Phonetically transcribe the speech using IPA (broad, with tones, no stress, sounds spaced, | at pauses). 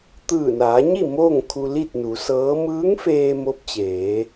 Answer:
t̪ ɯː˧˩ n aː˩˧ ɲ i˥˨ m o˥˨ ŋ kʰ u˧ l i˥˨ t̚ n u˩˧ s ɤː˧˥ m ɯː˧˥ ŋ f eː˧ m o˧˥ p̚ t͡ɕ eː˩˧